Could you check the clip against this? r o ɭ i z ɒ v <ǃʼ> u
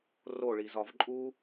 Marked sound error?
no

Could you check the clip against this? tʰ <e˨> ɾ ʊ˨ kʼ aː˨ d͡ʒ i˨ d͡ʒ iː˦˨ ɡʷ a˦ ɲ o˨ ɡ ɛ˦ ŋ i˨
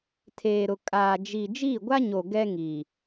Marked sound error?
yes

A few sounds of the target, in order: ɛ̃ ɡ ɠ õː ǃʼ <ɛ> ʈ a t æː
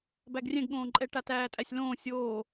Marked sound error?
no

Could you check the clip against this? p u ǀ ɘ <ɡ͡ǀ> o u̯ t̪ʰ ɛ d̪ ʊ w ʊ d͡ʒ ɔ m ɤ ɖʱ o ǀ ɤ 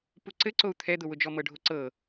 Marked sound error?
yes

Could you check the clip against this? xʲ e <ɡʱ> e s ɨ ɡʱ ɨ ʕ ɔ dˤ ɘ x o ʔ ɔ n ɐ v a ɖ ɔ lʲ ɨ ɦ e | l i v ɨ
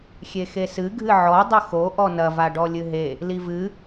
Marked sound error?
yes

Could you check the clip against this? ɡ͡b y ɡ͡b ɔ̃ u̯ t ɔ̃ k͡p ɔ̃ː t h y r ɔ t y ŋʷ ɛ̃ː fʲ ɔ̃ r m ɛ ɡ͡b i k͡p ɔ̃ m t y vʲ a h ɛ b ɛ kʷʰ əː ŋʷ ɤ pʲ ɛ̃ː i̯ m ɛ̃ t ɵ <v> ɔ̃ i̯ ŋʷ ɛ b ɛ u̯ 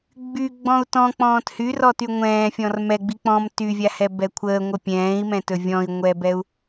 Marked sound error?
yes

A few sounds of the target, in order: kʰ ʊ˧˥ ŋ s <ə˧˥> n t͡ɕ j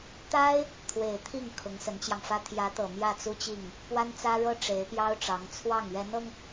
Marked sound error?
no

